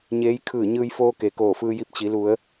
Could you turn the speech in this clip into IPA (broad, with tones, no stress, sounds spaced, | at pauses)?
ɲ eː˧˥ j kʰ ɯː˧˩ ɲ ɯː˧ j f oː˧ k e˩ k oː˧˩ f ɯː˧ j i˧ p̚ t͡ɕ i˩˧ l u˩˧ ə̯